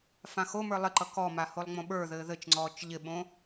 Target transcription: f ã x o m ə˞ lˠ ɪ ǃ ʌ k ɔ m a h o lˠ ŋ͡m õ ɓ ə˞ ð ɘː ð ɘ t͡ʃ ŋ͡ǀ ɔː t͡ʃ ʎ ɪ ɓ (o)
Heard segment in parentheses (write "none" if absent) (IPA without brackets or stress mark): õ